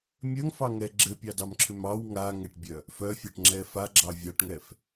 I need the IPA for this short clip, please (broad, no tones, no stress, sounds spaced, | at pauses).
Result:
mʲ œ ŋ f ɑ ŋ ɛ ɡ͡ǁ ɘ pʲ ɑ d ɑ m ǁʰ ʏ m ɑ w ŋ a ŋ ɛ ʈ bʲ œ | f œ fʲ ɑ ʈ ŋ͡ǁ ɛ f a ɡ͡ǁ ɑ vʲ ɑ ʈ ŋ ɛ f